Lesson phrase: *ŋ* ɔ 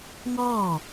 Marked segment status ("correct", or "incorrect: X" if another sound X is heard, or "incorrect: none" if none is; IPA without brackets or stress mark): correct